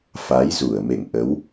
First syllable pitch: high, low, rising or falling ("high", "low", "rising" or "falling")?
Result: rising